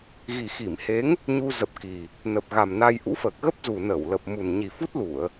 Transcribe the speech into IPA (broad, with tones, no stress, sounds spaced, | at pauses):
ɣ i˨˩ x i˧˩ m h e˨˦ ŋ | ɲ u˧ z ə˨˩ p̚ k i˨˩ | n ə˨˩ p̚ ɣ a˨˩ m n a˧ j ʔ ṵ˧˥ f əː˨˩ k̚ ɣ ə˦˥ p̚ z u˨˩ n əː˧˩ w l ə˨˩ p̚ m u˨˩ n ɲ i˨˩ f u˦˥ t̚ l u˧˩˨ ə̯